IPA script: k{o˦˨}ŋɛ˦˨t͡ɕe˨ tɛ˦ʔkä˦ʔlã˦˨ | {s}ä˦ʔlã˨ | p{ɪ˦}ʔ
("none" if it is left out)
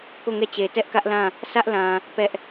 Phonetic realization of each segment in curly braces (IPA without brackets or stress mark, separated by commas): o˦˨, s, ɛ˦